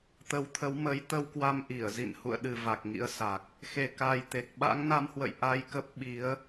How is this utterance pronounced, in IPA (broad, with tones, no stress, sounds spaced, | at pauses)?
t̪ ə˨˦ w t̪ʰ ə˨˦ w m ə˨˦ j t̪ ə˧ w k w a˧ m ʔ i˧˩ ə̯ z ḭ˧˨ n h ṵ˧˨ ə̯ ɗ ɨ˨˩ v a˨˩ k̚ ŋ ḭ˧˥ ə̯ s a˨˩ k̚ | x e˨˩ k a˨˩ j t̪ e˨˩ k̚ ɓ a̰˧˥ ŋ n a˨˦ m h w ə̰˧˨ j ʔ a˧ j k ə˦˥ p̚ ɓ i˨˦ ə̯